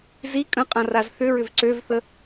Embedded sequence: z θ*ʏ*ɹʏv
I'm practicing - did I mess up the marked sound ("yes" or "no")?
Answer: no